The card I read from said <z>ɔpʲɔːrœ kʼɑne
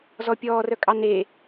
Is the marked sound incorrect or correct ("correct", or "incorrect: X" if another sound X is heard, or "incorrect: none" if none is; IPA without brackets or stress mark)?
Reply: correct